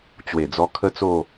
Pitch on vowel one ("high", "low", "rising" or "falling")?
low